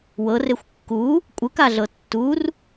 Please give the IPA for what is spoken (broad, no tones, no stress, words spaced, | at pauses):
wɤrexʷ kːu | kʷʼɯkaɮɤ tːur